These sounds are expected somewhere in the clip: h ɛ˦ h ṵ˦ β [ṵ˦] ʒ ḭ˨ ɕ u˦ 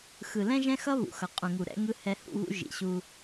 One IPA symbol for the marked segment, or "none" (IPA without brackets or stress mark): ṵ˦